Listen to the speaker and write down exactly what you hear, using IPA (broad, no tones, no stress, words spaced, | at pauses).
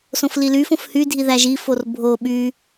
sõflilyfõf hydʱi ðæʒifor bʱo ɓy